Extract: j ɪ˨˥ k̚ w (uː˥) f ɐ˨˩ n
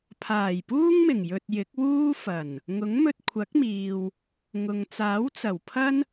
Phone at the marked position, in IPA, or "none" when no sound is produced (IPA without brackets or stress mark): uː˥